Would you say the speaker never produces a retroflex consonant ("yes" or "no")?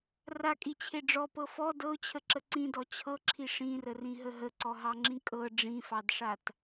no